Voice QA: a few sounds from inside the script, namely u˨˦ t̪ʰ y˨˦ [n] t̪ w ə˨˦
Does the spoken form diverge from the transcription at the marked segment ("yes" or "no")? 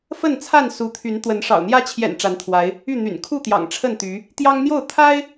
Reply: no